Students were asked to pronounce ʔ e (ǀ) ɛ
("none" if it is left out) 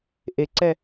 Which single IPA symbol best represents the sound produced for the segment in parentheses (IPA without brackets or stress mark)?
ǀ